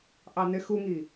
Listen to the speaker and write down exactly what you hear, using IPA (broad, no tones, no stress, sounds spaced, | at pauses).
ʔ ɑ n ɪ x u ŋ i